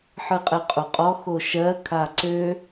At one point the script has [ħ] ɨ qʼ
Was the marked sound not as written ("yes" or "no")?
no